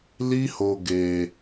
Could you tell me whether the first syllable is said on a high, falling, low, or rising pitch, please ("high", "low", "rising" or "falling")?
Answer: high